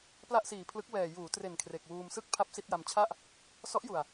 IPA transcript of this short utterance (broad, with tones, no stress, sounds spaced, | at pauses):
p l a˥˩ ʔ s iː˨˩ pʰ l ɯ˦˥ k̚ w ɛː˨˩ j uː˩˦ t r e˨˩ n kʰ r e˨˩ k̚ w uː˧ m s ɯ˥˩ k̚ pʰ a˥˩ p̚ s i˥˩ t̚ j a˧ m t͡ɕʰ a˥˩ ʔ | s ɔ˦˥ ʔ j u˨˩ a̯